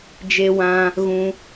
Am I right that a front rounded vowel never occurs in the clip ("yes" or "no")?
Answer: yes